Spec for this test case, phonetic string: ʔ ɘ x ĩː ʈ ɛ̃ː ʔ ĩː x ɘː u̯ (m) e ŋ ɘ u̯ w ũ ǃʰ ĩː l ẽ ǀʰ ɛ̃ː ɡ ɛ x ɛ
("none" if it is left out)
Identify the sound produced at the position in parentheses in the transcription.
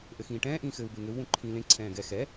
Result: b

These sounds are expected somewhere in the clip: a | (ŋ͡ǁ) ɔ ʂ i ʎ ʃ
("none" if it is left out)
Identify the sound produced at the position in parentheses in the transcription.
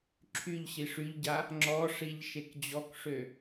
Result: ŋ͡ǁ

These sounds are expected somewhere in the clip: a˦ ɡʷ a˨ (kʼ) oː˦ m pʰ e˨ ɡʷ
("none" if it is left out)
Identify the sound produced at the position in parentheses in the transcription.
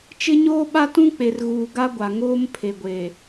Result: ŋ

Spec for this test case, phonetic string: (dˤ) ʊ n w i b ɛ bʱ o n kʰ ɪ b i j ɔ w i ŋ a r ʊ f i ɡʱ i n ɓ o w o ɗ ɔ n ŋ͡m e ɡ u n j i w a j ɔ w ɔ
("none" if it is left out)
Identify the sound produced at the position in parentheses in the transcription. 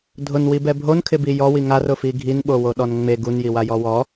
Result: dʱ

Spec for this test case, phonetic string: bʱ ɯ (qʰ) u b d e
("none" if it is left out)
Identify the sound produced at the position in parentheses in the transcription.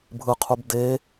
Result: qʰ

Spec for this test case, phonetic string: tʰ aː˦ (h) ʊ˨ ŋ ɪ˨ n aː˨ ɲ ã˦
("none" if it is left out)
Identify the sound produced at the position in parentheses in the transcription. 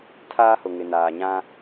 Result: h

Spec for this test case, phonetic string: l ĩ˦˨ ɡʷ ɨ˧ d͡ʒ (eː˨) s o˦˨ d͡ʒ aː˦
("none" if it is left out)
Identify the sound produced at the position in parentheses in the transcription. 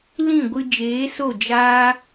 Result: eː˨˦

